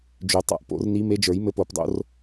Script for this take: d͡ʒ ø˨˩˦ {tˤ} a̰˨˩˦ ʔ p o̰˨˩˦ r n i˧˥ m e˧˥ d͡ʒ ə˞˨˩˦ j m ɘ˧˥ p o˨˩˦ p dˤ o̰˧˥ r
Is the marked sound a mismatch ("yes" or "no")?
no